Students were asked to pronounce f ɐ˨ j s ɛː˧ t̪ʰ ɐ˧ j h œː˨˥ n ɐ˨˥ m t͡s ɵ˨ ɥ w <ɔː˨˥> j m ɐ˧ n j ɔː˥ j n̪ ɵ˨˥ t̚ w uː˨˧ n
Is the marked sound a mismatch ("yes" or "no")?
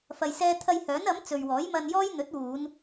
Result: no